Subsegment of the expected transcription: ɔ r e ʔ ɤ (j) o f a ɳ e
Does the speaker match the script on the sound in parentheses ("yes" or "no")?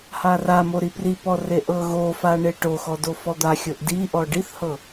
no